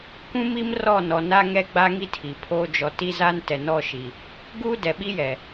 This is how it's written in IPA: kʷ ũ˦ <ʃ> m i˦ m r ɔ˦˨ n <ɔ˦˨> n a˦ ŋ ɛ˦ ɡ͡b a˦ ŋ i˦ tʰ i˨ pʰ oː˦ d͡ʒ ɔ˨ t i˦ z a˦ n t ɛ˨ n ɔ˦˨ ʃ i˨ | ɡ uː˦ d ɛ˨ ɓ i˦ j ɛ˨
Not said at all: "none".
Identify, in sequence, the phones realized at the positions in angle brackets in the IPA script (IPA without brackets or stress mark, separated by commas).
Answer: none, ɔ˨